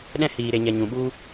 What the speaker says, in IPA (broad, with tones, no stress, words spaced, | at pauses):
ɗɛ̃˧hiː˨ɾe˨ ɲɛ˨ɲũ˨ɓu˧